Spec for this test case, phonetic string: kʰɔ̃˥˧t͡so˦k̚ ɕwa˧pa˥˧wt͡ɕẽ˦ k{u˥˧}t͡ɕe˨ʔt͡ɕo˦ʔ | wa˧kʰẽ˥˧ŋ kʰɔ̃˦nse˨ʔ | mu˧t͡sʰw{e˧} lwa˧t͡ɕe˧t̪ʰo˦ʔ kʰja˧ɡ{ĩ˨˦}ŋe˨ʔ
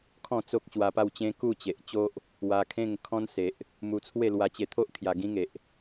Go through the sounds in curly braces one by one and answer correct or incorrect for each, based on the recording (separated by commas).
correct, incorrect, incorrect